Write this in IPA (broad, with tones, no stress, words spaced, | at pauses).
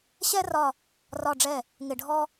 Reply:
ɕɛ˥rɒ˦˨ | rɒ˦˨ɖ͡ʐɛ˦˨ | ŋɪ˦˨ɖʱɔ˥